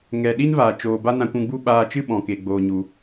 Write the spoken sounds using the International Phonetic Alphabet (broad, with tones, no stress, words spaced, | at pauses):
ŋɛ˨ɗi˦nvaː˨ t͡ʃoː˧ ba˦ nã˧kʷũ˧ɡ͡bu˦ ɓaː˧t͡ʃɨ˦ɓɔ̃˨ ke˧ ɡ͡boː˧ɲu˧